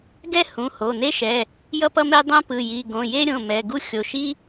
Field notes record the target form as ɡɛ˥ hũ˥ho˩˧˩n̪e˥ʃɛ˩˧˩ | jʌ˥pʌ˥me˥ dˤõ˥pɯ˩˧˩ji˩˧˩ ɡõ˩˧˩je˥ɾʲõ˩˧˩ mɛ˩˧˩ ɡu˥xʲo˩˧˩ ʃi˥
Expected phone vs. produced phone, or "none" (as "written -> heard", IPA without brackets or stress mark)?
ũ˥ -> ũ˩˧˩